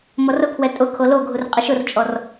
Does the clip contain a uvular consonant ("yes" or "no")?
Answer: yes